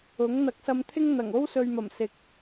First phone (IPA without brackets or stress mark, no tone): ʊ